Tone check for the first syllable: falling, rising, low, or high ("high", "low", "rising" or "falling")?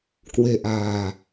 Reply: low